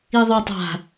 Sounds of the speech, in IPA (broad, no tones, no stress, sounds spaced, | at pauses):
i ðˤ ɵ tˤ a̤